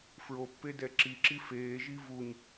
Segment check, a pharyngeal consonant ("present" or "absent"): absent